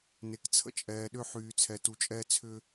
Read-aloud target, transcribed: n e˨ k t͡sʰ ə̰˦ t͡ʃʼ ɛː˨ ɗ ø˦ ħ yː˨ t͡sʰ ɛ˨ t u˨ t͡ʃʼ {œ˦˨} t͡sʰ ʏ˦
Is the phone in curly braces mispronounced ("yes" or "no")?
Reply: yes